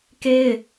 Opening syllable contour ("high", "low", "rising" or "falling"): high